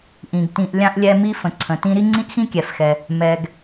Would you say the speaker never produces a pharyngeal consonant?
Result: yes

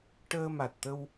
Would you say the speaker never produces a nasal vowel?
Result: yes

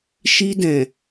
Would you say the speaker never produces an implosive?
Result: yes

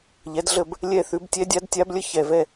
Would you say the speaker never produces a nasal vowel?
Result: yes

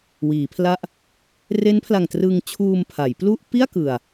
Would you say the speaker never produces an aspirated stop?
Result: no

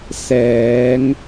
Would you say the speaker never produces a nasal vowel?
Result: yes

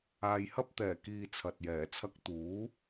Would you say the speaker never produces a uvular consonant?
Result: yes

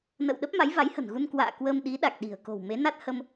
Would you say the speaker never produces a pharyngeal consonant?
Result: yes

